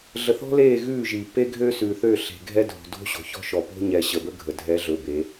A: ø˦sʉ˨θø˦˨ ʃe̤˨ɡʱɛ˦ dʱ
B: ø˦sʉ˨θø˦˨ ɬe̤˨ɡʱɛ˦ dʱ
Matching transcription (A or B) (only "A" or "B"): B